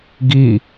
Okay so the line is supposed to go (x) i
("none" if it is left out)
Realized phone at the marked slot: ɡ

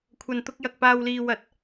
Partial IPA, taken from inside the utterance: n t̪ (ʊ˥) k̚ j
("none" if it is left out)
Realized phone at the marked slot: ʊ˧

